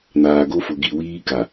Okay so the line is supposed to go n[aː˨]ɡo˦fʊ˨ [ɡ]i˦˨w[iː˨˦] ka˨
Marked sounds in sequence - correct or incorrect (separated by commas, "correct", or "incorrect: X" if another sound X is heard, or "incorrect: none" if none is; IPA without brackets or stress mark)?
correct, correct, incorrect: iː˦